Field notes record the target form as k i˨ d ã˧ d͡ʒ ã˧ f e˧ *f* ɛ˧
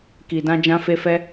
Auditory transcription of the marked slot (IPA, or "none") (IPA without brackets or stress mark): f